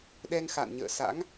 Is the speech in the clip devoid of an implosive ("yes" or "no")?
no